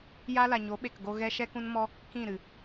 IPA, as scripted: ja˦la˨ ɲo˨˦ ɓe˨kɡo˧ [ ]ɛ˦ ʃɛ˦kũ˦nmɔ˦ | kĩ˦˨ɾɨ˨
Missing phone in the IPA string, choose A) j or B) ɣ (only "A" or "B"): B